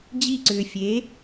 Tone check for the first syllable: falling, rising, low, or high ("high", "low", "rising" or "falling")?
falling